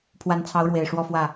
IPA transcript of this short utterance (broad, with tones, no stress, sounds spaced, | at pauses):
pʰ w a˧˥ n t͡sʰ ɑ˧˥ ʊ̯ ɻ w e˨˩ ɪ̯ ʂ w ɔ˥˧ f w ä˥˩